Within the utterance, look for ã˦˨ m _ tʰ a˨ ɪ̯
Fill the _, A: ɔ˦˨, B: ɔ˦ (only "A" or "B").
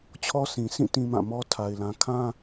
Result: B